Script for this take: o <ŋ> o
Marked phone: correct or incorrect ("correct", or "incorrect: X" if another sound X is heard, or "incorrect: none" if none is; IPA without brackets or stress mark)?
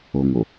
correct